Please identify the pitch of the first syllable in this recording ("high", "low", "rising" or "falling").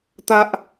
high